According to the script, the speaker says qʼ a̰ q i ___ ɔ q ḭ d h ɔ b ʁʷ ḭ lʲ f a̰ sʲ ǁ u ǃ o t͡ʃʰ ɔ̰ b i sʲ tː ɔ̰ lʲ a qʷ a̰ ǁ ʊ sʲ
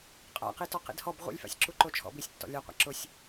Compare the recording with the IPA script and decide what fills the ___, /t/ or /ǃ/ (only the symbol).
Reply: t